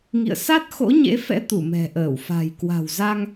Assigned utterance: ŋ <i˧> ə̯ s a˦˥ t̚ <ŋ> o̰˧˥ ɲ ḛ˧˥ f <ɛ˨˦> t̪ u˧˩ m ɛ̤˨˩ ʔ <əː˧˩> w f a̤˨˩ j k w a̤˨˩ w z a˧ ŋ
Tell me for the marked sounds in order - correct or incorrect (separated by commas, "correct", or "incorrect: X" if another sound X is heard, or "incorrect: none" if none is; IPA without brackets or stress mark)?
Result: incorrect: ḭ˧˨, incorrect: x, incorrect: ɛ̰˧˥, correct